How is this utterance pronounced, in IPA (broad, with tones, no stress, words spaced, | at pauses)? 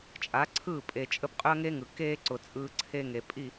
t͡ʃʼa˨˦ǀʰɯː˦˨ pʼe˨t͡ʃʼə˦p qʼʏ˦ɐ̯ŋe˦ ŋɯ˨ keː˦ǀʊ˨ t͡sʼɯː˦ǀʰe˦ŋe˨ pʼi˦˨